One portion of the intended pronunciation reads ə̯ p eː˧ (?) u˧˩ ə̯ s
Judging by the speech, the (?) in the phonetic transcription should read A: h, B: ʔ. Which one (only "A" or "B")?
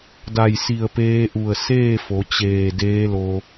B